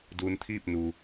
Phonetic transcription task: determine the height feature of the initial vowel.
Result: high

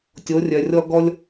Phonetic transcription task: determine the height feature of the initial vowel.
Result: mid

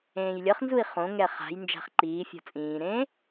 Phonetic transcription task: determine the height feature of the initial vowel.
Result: mid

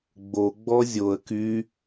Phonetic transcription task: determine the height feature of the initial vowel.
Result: mid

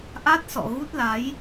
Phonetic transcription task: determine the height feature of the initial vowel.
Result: low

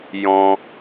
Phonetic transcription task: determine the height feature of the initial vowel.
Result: mid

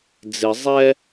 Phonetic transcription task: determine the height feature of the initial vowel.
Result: high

